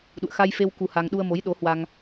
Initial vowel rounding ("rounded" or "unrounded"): rounded